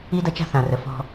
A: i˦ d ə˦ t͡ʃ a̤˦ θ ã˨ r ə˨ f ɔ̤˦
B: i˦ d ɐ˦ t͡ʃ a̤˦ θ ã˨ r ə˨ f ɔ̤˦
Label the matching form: B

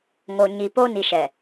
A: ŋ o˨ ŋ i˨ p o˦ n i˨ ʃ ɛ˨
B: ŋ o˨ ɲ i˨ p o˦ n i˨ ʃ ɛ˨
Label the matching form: B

